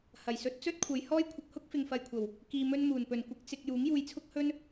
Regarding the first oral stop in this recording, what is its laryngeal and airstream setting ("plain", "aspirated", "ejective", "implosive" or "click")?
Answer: plain